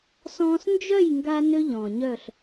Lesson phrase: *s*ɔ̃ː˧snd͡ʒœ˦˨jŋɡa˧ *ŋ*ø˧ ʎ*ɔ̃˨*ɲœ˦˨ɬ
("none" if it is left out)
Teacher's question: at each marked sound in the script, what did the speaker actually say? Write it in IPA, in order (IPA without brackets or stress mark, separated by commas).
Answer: s, n, ɔ̃˨